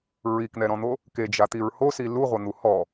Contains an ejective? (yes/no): no